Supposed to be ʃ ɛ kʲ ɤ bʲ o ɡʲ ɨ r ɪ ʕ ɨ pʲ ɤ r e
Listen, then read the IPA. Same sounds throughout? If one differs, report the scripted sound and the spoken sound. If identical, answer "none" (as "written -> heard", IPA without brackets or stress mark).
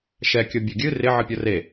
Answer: none